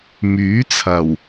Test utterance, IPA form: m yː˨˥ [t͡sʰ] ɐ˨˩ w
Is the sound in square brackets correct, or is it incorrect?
correct